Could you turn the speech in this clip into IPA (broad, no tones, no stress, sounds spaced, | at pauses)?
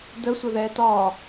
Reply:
d ə sʷ ɘ ð ɛː t ɒ